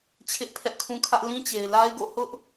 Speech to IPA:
t͡ɕʰɪ˦ʔpʰɛ˦ʔkʰũ˦kʰä˦ʔ lĩ˦t͡ɕe˨ɪ̯la˦ɪ̯ɡo̰˦˨ hʊ˦ʔ

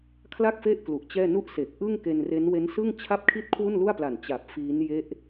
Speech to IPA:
kʰla˥˩k̚fe˥˩ʔ klu˨˩ʔt͡ɕɛː˥˩ nu˥˩ʔse˨˩k̚ ʔɯ˥˩ŋke˧nre˦˥n we˦˥nsɯ˥˩ŋt͡ɕʰa˥˩p̚kʰi˥˩t̚ kʰwu˥˩nlu˥˩a̯pla˨˩n t͡ɕa˨˩p̚ fiː˦˥n je˦˥ʔ

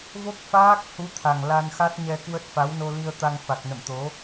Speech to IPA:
vo˦˥k̚faː˦˥k̚ hu˨˦ t̪ʰa˨˩ŋ la˧nxa˦˥t̚ ɲɛ˧kwə˦˥t̚fa˨˦wno˧ li˧ə̯t̪a˧ŋ fa˨˩k̚nə̰˧˨mt̪o˨˦

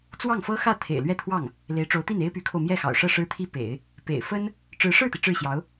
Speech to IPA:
t͡swɑ˥˩ŋfɤ˥xä˥˩ t̪ʰḛ˨˩ɪ̯lɥɛ˥˧t̪ʰwɑ˥˩ŋ | le˧˥ɪ̯ʈ͡ʂo˧˥ʊ̯t̪i˥˩n e˥ɪ̯py˧˥kʰo˧ʊ̯ mjɛ˥˩xɑ̰˨˩ʊ̯ʂɤ˥˩ ʂɻ̩˥t̪ʰi˥pḛ˨˩˦ɪ̯ | pḛ˨˩ɪ̯fə˥n | ʈ͡ʂɻ̩˧˥ʂɻ̩˥˩t̪i˩ ʈ͡ʂɻ̩˥˩ɕjɑ˧˥ʊ̯

